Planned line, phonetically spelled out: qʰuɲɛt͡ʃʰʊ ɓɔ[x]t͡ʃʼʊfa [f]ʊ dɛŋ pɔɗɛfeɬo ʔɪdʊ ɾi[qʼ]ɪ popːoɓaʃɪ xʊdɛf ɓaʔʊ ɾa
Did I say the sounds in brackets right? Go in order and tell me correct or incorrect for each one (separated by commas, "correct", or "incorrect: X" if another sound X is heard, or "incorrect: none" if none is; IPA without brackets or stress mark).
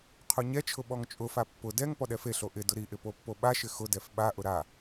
incorrect: ŋ, incorrect: pː, incorrect: ʔ